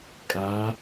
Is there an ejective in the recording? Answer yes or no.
yes